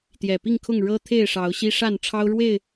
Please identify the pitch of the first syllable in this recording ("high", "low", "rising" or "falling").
low